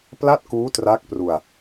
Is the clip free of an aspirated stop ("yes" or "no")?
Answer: yes